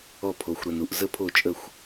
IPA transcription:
ɔ˧˩ pʰ o˩ xʷ ɾ ɜ˩ n u˩ ʔ z ə˧˩ pʰ o˧˩ t͡ʃʼ ə˧˩ xʷ

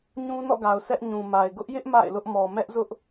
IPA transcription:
ɲ ũ˦ n ɔ̰˦˨ ɡ a˨ ʊ̯ s ɛ˦ ʔ ɲ ũ˨ m a˨ ɪ̯ ɡ ʊ˦ ʔ j ɪ˦ ʔ m a̰˦˨ ɪ̯ l ʊ˦ ʔ m ɔ˨ m ɛ˦ ʔ z ʊ˦ ʔ

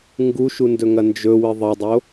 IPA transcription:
ŋ ɡ u ʃ u n d ɵ ŋ ɐ n d͡ʒ ɵ w ɨ ðˤ ɐ dˤ o

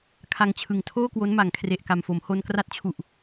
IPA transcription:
kʰ a˧ ŋ t͡ɕʰ ɯ˨˩ ŋ tʰ oː˥˩ k w o˦˥ n m a˩˦ ŋ kʰ r e˨˩ ʔ k a˨˩ m f o˩˦ m h o˧ n k r a˦˥ t̚ t͡ɕʰ u˨˩ ʔ

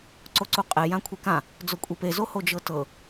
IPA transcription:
ǀ o ǀ u qʼ e j ã kʷʰ e k ã | d͡z o kʷʼ i p e z o h o d͡ʒ ɤ t ɤ

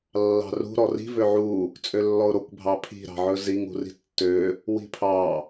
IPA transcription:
lː ɑ̤ r ṳ ɾ ɔ r i̤ v ø ʕ u | t͡sʼ ø lː ɔ ʊ̯ ɾ o kʷ bʱ ɑ pʰ i̤ ɾ ɑ̤ ʕ ɵ z i ŋ ṳ r i̤ tː ø | w i̤ pʰ ɑ

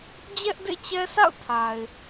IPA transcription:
d͡ʑ ɛ˦ ʔ d ḛ˦˨ t͡ɕ ɛ˦ s a̰˦˨ ʊ̯ tʰ a˨ ɪ̯

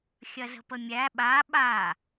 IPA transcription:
xʲ ɐ z ə̤ p ə mʲ æ ɓ a ɓ a

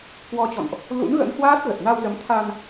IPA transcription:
k w ɔ˧ t͡ɕ ɔ̰˧˨ n ʔ | l ṵ˧˥ n ɣ ə̰˧˥ n h w aː˦˥ t̚ ɣ ə˨˩ t̚ n a˧ w z ə˨˦ m t̪ʰ a˧ n

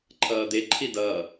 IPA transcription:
ǃʰ ʌː d̪ e ǃʰ i d ʌː

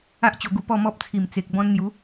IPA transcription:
a˦ ʔ t͡ɕ o˧ ɡ u˧ p ɔ˥˧ m ɔ˦ p̚ t͡sʰ i˨˩ m t͡s e˨ k̚ b ɔ̃˧ n n̪ j u˨˦

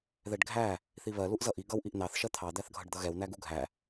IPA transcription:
ð ɛ ɖ ɡʱ æ | θ i β ɜ l u ʔ z ʌ ʔ i ɡ ʌ w ʔ i ʔ n ɑ θ ʃ ɜ t̪ʰ ɑ d̪ æ θ ɡʱ ʌ ɖ d̪ ʌ ɣ ɛ w n æ ɡ u ɡʱ æ

